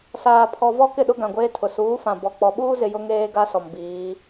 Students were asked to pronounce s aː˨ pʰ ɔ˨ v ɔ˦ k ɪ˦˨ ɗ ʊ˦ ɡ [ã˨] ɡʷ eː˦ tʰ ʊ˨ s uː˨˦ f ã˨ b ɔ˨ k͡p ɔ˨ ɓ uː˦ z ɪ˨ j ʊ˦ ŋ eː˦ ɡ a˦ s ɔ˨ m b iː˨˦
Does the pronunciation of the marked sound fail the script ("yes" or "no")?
no